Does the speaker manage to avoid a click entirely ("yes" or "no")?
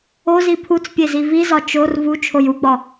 yes